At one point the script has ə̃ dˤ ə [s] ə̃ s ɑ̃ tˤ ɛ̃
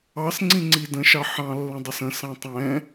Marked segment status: correct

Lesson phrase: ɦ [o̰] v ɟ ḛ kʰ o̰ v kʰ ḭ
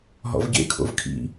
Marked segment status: incorrect: ɔ̰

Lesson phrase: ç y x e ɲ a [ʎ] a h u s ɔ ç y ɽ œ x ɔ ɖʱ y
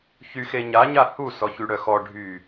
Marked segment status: incorrect: ɲ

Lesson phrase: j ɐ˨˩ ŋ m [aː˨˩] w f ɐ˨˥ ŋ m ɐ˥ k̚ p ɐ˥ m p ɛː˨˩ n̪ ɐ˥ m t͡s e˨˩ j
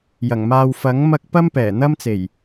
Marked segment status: incorrect: aː˧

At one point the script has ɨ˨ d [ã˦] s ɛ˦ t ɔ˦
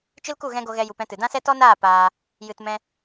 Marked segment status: correct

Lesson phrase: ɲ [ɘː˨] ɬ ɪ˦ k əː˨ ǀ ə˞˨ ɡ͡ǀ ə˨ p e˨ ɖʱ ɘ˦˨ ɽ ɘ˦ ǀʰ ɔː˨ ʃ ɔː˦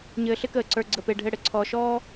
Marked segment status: correct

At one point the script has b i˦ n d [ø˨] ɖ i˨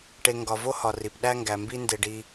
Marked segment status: incorrect: e˨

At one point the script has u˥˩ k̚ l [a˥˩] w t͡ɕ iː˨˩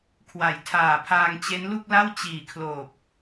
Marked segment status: correct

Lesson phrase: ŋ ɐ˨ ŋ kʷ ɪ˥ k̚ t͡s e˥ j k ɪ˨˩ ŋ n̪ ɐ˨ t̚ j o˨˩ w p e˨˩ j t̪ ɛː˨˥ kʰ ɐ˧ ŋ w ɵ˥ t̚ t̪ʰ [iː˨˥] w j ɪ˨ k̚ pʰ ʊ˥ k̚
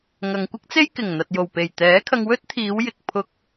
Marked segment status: incorrect: iː˨˧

